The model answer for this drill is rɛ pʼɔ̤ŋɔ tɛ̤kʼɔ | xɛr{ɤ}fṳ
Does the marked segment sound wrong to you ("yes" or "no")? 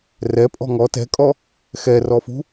yes